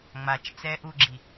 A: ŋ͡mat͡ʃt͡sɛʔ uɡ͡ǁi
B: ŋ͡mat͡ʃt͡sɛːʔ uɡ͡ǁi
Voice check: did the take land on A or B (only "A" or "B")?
B